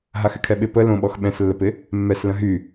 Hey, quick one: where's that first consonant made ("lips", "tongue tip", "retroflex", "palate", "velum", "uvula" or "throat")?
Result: throat